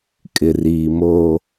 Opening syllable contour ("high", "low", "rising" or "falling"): low